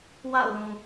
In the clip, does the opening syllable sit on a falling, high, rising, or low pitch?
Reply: falling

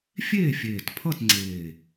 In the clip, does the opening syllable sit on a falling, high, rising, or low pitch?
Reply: falling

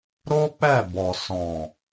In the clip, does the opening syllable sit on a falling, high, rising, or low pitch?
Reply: high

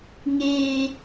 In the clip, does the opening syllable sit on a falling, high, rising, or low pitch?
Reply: high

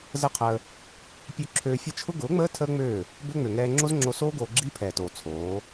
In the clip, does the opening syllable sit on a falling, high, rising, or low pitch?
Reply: falling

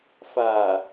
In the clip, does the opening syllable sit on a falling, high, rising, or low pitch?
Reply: low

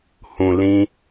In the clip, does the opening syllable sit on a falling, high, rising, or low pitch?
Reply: low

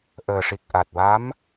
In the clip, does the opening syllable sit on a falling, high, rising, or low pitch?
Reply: low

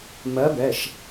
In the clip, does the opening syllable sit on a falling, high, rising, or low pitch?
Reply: rising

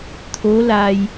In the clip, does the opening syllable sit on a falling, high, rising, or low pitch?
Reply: rising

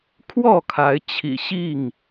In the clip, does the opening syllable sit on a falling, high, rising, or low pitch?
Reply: falling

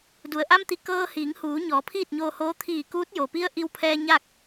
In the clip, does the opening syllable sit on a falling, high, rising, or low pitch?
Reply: low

